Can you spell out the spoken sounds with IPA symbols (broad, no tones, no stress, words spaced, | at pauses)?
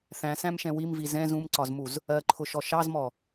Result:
θæ̃sæ̃mʃɛ̃ wimvi zɛ̃z ũmǀɒzmuz | ɜǃʰʊʃɔ ʃɑzmɔ